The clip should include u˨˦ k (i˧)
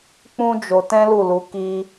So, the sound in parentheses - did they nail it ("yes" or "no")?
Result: yes